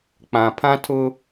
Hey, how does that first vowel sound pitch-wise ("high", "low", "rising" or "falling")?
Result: low